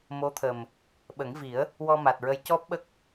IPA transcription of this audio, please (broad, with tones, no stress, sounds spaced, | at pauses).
m o˧˥ t̪ʰ ə˨˩ m | ɓ ə˨˩˦ ŋ v i˨˩˦ ə̯ | w ɔ˧ m a˨˩ t̚ ɹ ə˧˥ j c ɔ˦˥ p̚ ɓ ə˦˥ k̚